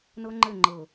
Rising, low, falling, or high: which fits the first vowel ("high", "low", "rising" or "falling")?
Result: high